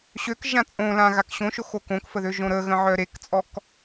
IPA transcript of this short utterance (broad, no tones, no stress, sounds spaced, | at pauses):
ɕ ø k ʒ ã t͡sʼ õ l ã ɣ a k ɕ õ ʃ o x o k õ k f ə ð ø ʒ õ ɾ ə ɣ ə̃ ʕ œ ɾ e k t͡sʼ ɔ k